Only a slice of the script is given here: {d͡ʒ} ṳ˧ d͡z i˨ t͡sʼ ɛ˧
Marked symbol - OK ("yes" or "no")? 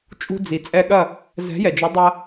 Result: no